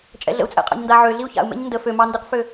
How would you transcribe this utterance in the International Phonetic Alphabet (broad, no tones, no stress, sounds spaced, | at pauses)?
t͡ʃʼ ɛ̰ ɮ ə̰ u̯ t͡sʼ ɛ̰ qʼ ɑ̰ ɲ n d a ʕ ø ɮ i u̯ ç a̰ u̯ m ɛ̰ ɲ n d ə f ø m ɑ n d ɯ q f ø